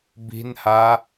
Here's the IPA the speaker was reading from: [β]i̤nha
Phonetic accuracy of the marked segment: incorrect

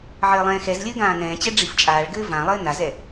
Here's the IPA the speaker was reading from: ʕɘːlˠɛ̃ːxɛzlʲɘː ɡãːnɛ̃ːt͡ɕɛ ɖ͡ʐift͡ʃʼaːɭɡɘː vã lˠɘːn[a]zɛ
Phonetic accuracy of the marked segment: correct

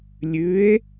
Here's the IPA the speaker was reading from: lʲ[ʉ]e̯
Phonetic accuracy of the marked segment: correct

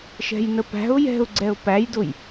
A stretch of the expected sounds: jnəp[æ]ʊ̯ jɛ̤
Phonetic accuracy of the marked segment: incorrect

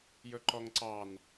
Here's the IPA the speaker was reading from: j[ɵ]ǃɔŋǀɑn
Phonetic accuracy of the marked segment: correct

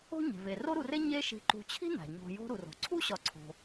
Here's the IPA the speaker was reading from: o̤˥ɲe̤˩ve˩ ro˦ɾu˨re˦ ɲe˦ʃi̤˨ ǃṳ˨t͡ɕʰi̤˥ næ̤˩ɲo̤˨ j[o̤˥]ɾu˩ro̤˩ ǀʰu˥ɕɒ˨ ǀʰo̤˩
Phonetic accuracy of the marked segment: incorrect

